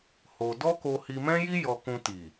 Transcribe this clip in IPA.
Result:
h o˧ d ɔ˦ k o˧ h i˧ m ɛ̃˦ j i˦ j ɔ˧ k ũ˧ t i˨

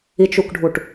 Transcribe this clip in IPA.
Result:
i t͡ʃ u k ɖʱ u ʈ

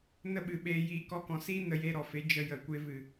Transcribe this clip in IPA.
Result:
n ə˦ ɓ ɨ˨ ɓ eː˧ j iː˧ k ɔ˧ k ɔ̃˨ s iː˦ n ə˧ j e˧ ɾ ɔ˨ f e˨˦ d͡ʒ ə˧ j ə˨ kʷ e˧ v ɨ˨

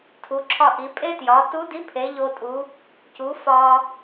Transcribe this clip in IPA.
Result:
tʰ u˩˧ ǁʰ ɒ˧ ʔ i˩˧ pʼ e˥ t j ɒ˩˧ t u˧˥ d i˧˥ pʰ e˩˧ ʎ o˧ tʼ u˩˧ | c u˩˧ f ɒ˧

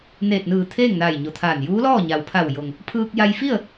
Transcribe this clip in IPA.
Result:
n eː˧˩ t̚ n ɯː˧˩ t̪ʰ eː˥˨ ŋ n aː˧˩ j ɲ o˩ t̪ʰ aː˧˩ n j uː˧˥ l ɔː˥˨ ɲ a˩ w pʰ a˧˩ w j o˩ ŋ | pʰ ɯː˧ k̚ j a˧ j f i˥˨ ə̯

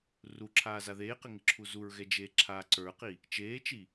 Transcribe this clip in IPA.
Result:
r u ǁʰ aː z a ð eː q ɪ ŋ ɪ ǁʰ u z u ɹ ɣ ɛ d͡ʒ eː ǁʰ aː ǀ ə˞ q i | t͡ʃ eː t͡ʃ i

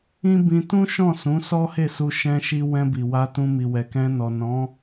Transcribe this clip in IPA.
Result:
ĩ˦ b ĩ˧ t ũ˦ ʃ ɔ̃˦˨ s ũ˨˦ s ɔ˦ h e˦˨ s u˧ ʃ ɛ̃˧ ʃ i˧ w ɛ̃˧ b i˨ w a˧ t ũ˧ m i˨ w ɛ˨ k ɛ̃˧ n ɔ˨ n ɔ̃˨˦

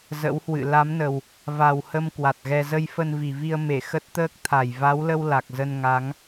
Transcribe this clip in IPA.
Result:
z ə̰˧˥ w h w ɨ̰˧˨ l a˨˦ m n ə˨˩ w | v a˨˩ w h ə˧ m k w a˨˩ t̚ ɣ ɛ˧ z ə˧ j f ə˧ n v i˨˩ v i˧ ə̯ m e˧˩ x ə˦˥ t̚ t̪ əː˦˥ k̚ t̪ʰ a˨˩ j v a˨˦ w l ə˧ w l a˨˩ k̚ z ə˧ n ŋ a˨˦ ŋ

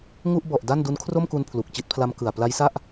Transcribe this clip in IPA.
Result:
ŋ u˥˩ ʔ b ɔ˨˩ ʔ d a˥˩ n d u˦˥ n kʰ r o˥˩ m k u˧ n pʰ l u˨˩ k̚ t͡ɕ i˦˥ t̚ pʰ l a˦˥ m k ɯ˨˩ a̯ p l a˦˥ j s a˥˩ ʔ

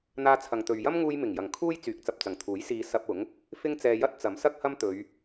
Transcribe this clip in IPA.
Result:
n̪ aː˧ t͡sʰ ɐ˨ ŋ t̪ ɵ˨ ɥ j ɐ˥ m ŋ uː˧ j m ɪ˨˩ ŋ j ɐ˨˩ ŋ kʰ uː˥ j t͡s yː˨˥ k̚ t͡s ɐ˨ p̚ t͡s ɐ˨˩ ŋ t̪ʰ uː˨˥ j s iː˧ s ɐ˧ p̚ ʊ˨˥ ŋ | f ɪ˥ ŋ t͡s ɛː˧ j ɐ˥ t̚ t͡s ɐ˨˥ m s ɐ˥ k̚ h ɐ˥ m t̪ ɵ˨˧ ɥ

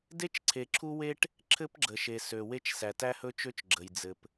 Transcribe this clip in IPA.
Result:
d e˦ t͡ʃ ǀʰ e˨ ǁʰ u˦ w e˦ ʈ | ǁʰ ɘ˦ p ɡ͡ǁ ə˨ ʃ e˨ s ø˨ w e˦ t͡ʃ s æ˨ t æ˦ h ɵ˦ t͡ʃ ø˦ t͡ʃ ɡ͡ǁ ə˨ j d͡z ɘ˨ p

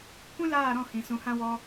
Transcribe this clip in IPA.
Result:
kʷ ĩ˦ l aː˦˨ ɾ ɔ̃˦˨ h ĩ˨ s ũ˨ h ã˧ w ɔ˧

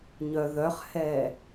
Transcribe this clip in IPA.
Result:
ɲ œ ð œ χ h ɛ

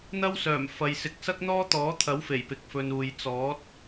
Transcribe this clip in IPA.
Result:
n̪ ɐ˥ w s œː˨˩ m f ɐ˨ j s ɪ˨˥ k̚ s ɐ˥ k̚ n̪ ɔː˥ t̪ ɔː˨˥ t̪ʰ ɐ˨˥ w f e˨˩ j p ɪ˨ k̚ f ɵ˨ n uː˨ j t͡s ɔː˨˥ t̚

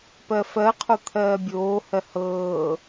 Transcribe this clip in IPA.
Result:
p ɜ f ɜ qʰ o t̪ʰ ɜː bʲ oː h ɜ h ɤː

